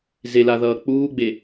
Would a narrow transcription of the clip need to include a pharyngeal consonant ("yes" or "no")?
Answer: no